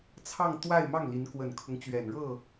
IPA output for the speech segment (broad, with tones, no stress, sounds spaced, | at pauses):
t͡sʰ ɑ˥˧ ŋ t̪ w a˥˧ ɪ̯ m ɑ˥˩ ŋ l i˧˥ n k w ə˨˩ n kʰ ʊ˦ ŋ t͡ɕ ɥ ɛ˨˩ n ɻ ɤ˥˩